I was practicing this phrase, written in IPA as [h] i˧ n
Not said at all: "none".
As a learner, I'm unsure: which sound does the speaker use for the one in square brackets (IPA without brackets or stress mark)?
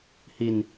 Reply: h